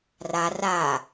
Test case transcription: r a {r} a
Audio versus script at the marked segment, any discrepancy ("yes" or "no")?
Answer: no